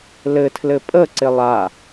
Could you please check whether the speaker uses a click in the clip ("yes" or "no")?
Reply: yes